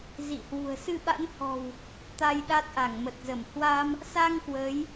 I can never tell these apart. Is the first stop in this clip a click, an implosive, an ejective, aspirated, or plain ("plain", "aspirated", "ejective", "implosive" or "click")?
implosive